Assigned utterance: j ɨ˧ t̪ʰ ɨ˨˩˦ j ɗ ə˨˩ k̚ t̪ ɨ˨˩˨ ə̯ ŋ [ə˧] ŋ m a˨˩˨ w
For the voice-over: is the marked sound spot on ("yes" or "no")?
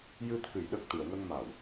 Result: yes